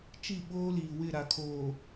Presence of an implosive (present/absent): present